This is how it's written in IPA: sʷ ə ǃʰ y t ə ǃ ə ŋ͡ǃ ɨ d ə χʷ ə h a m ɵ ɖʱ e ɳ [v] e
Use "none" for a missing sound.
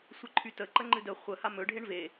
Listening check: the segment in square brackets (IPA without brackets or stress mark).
v